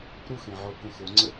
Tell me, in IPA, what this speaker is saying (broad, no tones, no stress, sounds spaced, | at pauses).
ɾ u x ẽ ʕ o k ə̃ x o ŋ͡ǀ ə